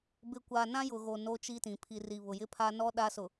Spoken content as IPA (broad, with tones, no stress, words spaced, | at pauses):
bɪ˨kʷa˨ nã˦jʊ˨ɣo˨ no˦t͡ʃi˦tĩ˨ pʰi˨ri˨ βʊ˨jɪ˦pʰa˦ nɔ˦ ɗa˦sʊ˨